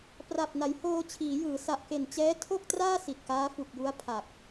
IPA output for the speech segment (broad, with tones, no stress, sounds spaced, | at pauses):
p r a˨˩ p̚ n a˩˦ j h oː˧ t͡ɕʰ iː˩˦ j ɯː˩˦ s a˨˩ ʔ k e˨˩ n t͡ɕ ɛː˦˥ tʰ o˥˩ k̚ t r aː˥˩ s i˨˩ t̚ k aː˦˥ f u˨˩ k̚ j u˦˥ a̯ pʰ a˨˩ k̚